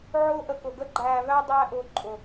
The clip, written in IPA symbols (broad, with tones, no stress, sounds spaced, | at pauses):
ʕ ʊː˦ ʔ ə˧ k ʊ˨ ɡ ə˦ ɡ͡ǃ æː˧ v æ˦ dˤ æː˦ ʔ ʊː˧ ǃʼ ʊ˨